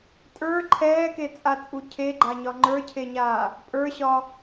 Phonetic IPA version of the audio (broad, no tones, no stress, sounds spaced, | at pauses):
tʼ ə˞ ǃʰ ɛː k e t͡sʼ a t͡sʼ u cʰ e ɡ͡ǃ a ɲ ɒ ŋ͡ǃ ə˞ cʰ e ɲ aː | pʼ ə˞ ɕ ɒ